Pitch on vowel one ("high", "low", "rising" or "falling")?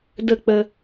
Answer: falling